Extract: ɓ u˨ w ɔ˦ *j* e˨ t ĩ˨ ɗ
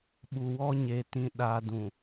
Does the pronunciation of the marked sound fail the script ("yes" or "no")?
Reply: yes